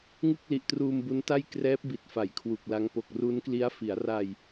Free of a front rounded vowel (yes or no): yes